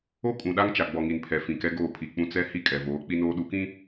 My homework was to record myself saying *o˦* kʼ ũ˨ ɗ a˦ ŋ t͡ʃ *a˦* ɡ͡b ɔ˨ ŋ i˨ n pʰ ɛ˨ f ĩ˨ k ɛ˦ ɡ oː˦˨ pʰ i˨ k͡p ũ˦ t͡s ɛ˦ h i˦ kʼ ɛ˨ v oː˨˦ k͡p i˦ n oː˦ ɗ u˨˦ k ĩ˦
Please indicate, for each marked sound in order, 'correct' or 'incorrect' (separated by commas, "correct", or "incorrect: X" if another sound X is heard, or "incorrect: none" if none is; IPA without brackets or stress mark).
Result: correct, incorrect: a˨